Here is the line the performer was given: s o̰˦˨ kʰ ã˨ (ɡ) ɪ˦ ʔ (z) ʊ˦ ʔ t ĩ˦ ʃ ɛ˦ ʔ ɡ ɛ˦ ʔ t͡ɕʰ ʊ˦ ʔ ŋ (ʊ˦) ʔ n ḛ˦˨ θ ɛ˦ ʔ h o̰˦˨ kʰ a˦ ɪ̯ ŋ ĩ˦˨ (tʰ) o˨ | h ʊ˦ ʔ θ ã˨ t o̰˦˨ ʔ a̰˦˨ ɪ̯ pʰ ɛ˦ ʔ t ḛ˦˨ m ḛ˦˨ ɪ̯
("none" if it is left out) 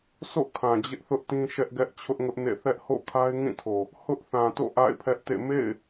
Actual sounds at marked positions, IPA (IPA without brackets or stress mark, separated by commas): d͡ʑ, θ, ʊ˦, tʰ